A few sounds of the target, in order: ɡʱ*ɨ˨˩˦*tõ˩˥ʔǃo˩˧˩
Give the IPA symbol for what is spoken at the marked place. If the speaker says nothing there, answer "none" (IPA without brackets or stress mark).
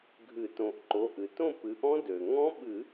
ɨ˨˩˦